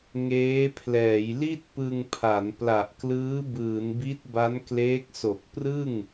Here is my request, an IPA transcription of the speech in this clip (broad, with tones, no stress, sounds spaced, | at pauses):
ŋ eː˦˥ pʰ l ɛː˩˦ j l i˥˩ t̚ p ɯ˧ ŋ pʰ a˩˦ n p l a˨˩ ʔ k l ɯː˦˥ b ɯː˩˦ n b i˦˥ t̚ b a˦˥ n k l eː˦˥ k̚ s o˨˩ k̚ p r ɯ˥˩ ŋ